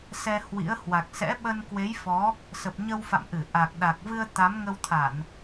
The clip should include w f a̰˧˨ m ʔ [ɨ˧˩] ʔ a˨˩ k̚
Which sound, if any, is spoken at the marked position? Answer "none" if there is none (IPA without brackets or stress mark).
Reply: ɨ˧˩